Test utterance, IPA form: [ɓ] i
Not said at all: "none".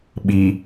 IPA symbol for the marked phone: ɓ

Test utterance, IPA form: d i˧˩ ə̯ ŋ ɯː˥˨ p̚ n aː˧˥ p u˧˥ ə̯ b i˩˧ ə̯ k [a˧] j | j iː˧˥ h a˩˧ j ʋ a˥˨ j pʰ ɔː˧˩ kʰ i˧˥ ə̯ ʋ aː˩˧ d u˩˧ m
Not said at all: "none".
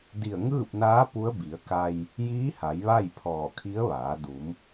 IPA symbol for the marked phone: a˧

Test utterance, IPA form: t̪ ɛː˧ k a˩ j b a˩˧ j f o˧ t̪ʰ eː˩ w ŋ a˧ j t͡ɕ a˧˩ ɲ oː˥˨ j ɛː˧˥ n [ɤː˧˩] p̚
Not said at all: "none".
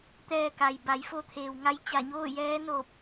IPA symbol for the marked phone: oː˧˩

